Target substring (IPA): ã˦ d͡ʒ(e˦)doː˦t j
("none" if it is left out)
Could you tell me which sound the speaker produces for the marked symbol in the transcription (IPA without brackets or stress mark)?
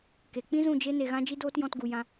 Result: i˦